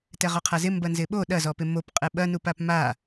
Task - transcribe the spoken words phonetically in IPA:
tɛʁɔqʰazɪ mbɐnzɪɓo ɗɐzɔpɪ mop qʼɛɓɐnupap ma

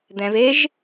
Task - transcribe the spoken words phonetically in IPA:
d̪ɛ̃v eʒ

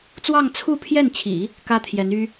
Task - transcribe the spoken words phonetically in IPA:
t͡swɑ˥˧ŋt͡sʰu˥˧pʰjɛ˥˩nt͡ɕʰḭ˨˩˦ | kä˥t̪ʰjɛ˧˥ny˥

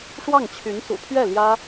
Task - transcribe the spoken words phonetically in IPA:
ʂwɑ˥˩ŋt͡ɕʰy˧˥n sṵ˨˩pʰɥɛ˥˩ ljä˥

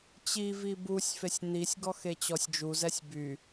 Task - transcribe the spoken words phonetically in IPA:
t͡ɕivi busʲ fesʲn̪isʲɡɔ xet͡ɕɔsʲd͡ʒuzɛsʲ by

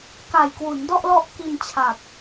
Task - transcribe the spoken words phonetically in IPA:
ka˨˩j kwu˩˦ndɔ˥˩ʔlɔ˦˥ʔ ki˧nt͡ɕʰa˨˩p̚

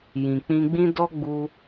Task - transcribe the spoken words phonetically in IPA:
jĩ˨ k͡pĩ˧ɡ͡bĩ˦ dɔ˦ɡ͡bu˧

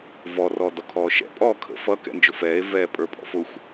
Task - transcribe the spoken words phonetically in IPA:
vɔrɔː dɔkʰɔːʃɛ̰pʼɔː kʰə̰ fʌ kɛ̰nd͡ʒʊfɛːe̯ vɛːpʼə˞pʼɔ̰fʊxʷ

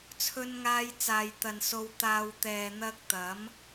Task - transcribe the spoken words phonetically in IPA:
t͡sʰɵ˥nŋaː˥jt͡saː˧jt̪ɐ˧n so˧wt̪aː˧w t̪ɛː˨ n̪ɐ˥k̚ t̪ɐ˨˥m

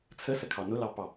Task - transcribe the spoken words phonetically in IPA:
t͡sʰəsəkʰɑ nʊlɑpɑ

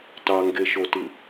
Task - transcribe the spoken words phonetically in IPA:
tɑŋɡeʃotɯ

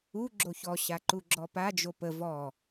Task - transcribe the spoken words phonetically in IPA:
u ɡ͡ǁoçɔ ɕaǃuɡ͡ǁɔpa d͡ʒopə vɔ

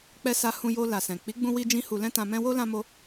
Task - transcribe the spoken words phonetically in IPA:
k͡pɛ˧sa˧ hũ˧jo˧ la˨sɛ̃˨ k͡pi˨˦ɡ͡bũ˧wi˧d͡ʒĩ˧ hu˧lɛ̃˦tã˧mɛ̃˦ wo˦ lã˦mo˦

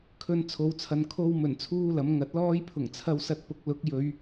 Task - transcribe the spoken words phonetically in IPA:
kʰɵ˧n t͡sʰo˨˧wt͡sʰɐ˨n kʰo˧wmɵ˨˩n t͡sʰuː˥lɐ˨˥m ŋɐ˨˥t̚lɔː˥j pʰʊ˨˩ŋt͡sʰɐ˧wsɐ˧t̚ pʊ˨˥k̚lʊ˨˥k̚ jɵ˨˧ɥ

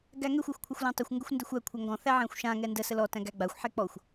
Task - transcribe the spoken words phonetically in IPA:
ɡæŋɛxʷ axʷkʷʰəxʷlæ̃tˤəxʷ ŋɡʏxʷndɛxʷæ kʷʰæŋɡɔ̃ θæʕæ̃xʷʃã ŋɛndə səlɔ tæ̃ɡæɡ͡baxʷ ħɛk͡pɔxʷ

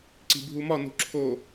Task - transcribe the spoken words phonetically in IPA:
ǀi̤bʱumɒ nṳǁʰo

